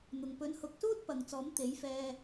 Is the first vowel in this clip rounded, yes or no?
yes